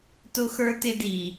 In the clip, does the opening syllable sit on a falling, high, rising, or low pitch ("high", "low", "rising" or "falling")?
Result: high